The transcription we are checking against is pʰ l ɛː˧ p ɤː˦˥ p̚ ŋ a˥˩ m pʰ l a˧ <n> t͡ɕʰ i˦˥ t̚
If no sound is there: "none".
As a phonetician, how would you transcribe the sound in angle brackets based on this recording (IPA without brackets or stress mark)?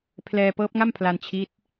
n